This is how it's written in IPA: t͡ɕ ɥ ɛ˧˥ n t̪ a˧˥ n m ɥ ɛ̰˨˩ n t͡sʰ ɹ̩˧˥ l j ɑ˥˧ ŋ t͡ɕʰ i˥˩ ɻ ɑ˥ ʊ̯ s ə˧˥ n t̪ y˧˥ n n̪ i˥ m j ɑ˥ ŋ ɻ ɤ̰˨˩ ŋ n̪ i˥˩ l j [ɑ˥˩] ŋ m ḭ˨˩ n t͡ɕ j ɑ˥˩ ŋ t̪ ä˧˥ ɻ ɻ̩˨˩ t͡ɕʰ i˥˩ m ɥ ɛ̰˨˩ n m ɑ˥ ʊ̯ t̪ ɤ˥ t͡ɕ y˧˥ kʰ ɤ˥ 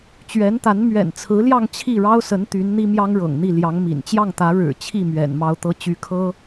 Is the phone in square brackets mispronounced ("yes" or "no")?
yes